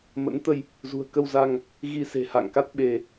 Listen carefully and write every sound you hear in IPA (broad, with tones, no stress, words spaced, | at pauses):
mə̰˧˥nt̪ə˧j | zṳ˨˩ə̯kə˧wza˧ŋ | ɣi˧se̤˨˩ ha̰˧˨ŋka˦˥t̚ ɓe˧